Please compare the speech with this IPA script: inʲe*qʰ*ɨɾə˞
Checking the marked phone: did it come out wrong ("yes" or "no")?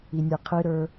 no